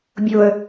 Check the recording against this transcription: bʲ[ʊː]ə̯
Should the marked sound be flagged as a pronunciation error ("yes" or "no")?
no